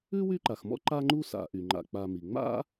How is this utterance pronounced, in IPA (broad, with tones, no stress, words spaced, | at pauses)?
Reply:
ʉ˥wy˦ǃa˩xmɔ̰˥ ǃa˦ŋ͡ǃu˦sa̰˨ ʔy˩ŋ͡ǃa̰˨k͡pa˨mi˩ ŋ͡ma̰˥